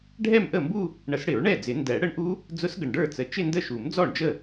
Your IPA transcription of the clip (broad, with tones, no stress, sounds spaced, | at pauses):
ɖʱ ɛ˥˧ m ʔ ə˥˩ m b u˥˧ | ɳ ə˨˩˦ s ɽ ɪ˨˩˦ ɹ ɳ ɛ˥˩ d͡z ɪ˨˩˦ n d ɛ˨˩˦ ɽ ə˦˥ ɳ ʔ u˦˥ | d͡z ʊ˦˥ s ɡ ə˨˩ ɳ ɖ ə˞˥˩ t͡s ə˨˩ t͡ʃ ɪ˥˧ n d ə˥˩ ʃ u˨˩˦ m d͡z ɔ˥˩ ɳ d͡ʒ ə˥˩